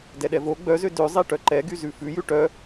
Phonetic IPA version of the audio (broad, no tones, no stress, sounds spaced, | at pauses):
d ɛ ɗ ɛ v o ɡ͡b œ z ø d ø zˤ e ʈ œ ǃ ɛ ɡ y z ʉ f ʉ j ʉ ʈ œ